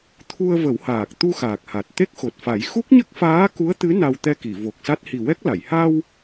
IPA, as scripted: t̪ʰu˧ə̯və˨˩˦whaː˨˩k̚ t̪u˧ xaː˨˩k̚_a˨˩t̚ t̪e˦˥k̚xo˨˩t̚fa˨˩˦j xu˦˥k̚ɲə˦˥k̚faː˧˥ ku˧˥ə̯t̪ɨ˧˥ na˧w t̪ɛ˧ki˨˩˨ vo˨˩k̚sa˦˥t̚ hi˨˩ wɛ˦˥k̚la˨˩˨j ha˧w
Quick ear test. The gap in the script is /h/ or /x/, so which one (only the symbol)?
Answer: h